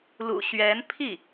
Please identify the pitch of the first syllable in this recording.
low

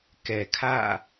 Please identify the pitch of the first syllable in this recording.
low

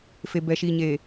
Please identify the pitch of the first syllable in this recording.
low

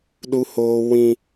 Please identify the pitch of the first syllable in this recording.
high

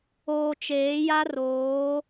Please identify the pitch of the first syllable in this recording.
low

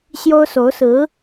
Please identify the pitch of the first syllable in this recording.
high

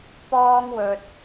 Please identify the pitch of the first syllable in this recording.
high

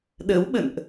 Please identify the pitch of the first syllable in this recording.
rising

